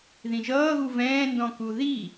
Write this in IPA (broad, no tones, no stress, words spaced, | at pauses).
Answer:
ðĩʒʌːɣu vɛ̃ːndɔ̃ku ði